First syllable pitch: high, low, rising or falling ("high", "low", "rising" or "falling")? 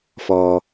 low